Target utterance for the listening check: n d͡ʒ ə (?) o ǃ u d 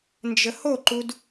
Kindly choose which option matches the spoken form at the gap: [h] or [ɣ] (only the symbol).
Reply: h